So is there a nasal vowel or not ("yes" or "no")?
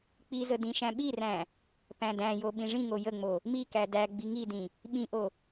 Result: yes